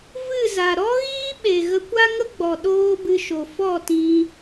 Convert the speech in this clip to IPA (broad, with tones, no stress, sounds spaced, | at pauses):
v ɨ˦˨ z a˨ ɾ ɔ˦ ɣ iː˦ ɓ e˨ ɣ ə˧ kʷ a˦ ŋ ə˦ ɡ͡b ɔ˨ ɗ oː˦ b ɨ˧ ʃ o˨ f ɔ˦˨ t ĩ˧